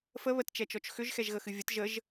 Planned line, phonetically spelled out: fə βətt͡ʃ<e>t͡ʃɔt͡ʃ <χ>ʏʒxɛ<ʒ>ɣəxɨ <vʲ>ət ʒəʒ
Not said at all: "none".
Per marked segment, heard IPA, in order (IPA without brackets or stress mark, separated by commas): ɛ, x, ʒ, vʲ